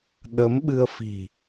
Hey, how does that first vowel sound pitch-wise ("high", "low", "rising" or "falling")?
rising